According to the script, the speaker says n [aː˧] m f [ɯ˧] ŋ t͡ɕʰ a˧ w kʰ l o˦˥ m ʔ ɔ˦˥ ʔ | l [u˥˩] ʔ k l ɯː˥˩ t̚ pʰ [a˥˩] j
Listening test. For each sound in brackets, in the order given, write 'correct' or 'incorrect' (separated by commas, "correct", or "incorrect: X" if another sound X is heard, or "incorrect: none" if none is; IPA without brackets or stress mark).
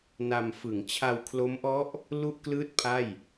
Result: incorrect: a˧, incorrect: ɯ˩˦, correct, correct